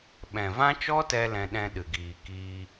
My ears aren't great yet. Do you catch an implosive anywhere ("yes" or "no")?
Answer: yes